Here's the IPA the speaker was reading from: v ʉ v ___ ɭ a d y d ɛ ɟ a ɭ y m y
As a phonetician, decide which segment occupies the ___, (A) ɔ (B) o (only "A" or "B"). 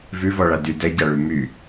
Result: A